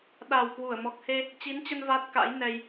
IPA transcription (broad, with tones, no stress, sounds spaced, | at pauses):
ɗ a˨˩ w k w u˧˩ ə̯ m ɔ˨˩ k̚ h e˧ | t͡ɕ i˨˦ n t͡ɕ ə˧ n v a˦˥ t̚ k a̰˧˥ j n ɛ˧ j